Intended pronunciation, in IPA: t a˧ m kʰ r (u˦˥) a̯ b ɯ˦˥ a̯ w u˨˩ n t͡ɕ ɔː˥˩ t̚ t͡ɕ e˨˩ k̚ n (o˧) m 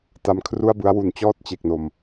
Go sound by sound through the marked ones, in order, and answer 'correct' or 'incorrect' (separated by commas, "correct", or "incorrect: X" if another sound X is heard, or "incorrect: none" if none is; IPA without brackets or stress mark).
incorrect: u˥˩, incorrect: o˨˩